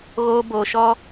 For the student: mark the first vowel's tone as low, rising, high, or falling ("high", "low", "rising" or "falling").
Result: high